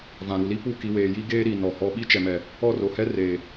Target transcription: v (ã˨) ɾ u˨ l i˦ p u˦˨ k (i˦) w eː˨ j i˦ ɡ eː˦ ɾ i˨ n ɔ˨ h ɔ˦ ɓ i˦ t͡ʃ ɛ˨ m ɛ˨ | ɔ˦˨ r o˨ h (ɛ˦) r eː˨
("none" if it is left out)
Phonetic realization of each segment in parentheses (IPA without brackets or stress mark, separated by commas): ã˨, i˨, ɛ˦